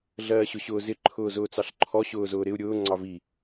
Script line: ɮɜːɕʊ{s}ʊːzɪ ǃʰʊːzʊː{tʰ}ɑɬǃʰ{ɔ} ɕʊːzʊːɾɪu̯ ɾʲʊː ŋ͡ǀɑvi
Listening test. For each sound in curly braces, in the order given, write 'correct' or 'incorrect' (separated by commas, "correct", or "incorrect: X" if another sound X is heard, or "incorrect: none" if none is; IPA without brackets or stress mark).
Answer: incorrect: ɕ, incorrect: t͡s, correct